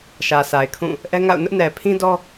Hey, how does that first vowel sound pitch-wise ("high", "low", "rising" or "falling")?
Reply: low